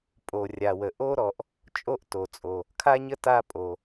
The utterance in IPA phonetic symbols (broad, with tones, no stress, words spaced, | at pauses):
pʼo˩rʲa˩wə˩ ʔo˥ɾɔ˩ʔ | t͡ʃʼo˥ʔto˩t͡sʼo˩ | kʰa˥ɲə˥ ta˥pʼo˩